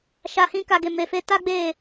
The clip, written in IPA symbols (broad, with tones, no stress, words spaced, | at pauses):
ʃa˧hĩ˦ka˧ ɡe˧ me˧fe˦ ta˦ɡ͡be˦˨